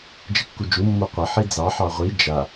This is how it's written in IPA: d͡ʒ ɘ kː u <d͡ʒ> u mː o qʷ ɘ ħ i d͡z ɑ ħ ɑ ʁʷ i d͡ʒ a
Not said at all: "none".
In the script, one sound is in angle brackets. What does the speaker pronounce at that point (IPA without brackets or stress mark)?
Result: d͡ʒ